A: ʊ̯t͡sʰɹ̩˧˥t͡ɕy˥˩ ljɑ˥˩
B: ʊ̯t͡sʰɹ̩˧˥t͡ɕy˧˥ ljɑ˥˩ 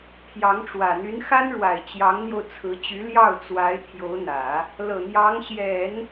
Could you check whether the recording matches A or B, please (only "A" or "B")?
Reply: B